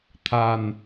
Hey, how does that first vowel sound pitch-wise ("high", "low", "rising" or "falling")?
low